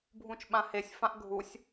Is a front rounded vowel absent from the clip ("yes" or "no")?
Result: yes